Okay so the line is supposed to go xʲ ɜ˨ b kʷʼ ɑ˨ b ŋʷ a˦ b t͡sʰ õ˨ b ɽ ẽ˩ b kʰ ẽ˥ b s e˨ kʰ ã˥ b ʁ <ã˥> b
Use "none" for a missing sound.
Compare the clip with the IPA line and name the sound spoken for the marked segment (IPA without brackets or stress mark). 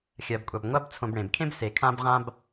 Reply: ã˥